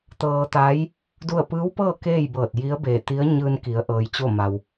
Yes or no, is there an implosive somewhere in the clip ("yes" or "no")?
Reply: no